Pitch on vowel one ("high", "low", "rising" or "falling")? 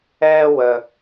high